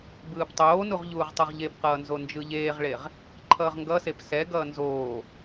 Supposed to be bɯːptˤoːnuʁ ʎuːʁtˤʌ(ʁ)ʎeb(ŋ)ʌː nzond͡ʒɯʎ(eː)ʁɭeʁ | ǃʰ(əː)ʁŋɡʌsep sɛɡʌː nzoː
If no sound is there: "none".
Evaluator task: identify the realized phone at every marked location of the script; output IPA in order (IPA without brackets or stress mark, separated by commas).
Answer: ʁ, q, eː, ʌː